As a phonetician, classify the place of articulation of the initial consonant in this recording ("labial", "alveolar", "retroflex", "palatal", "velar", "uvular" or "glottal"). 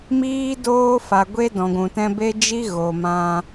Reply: labial